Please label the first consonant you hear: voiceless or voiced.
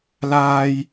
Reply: voiced